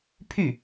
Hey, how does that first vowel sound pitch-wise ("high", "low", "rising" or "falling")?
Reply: falling